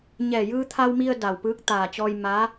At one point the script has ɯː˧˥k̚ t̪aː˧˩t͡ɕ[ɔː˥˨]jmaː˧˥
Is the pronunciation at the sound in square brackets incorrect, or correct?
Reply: incorrect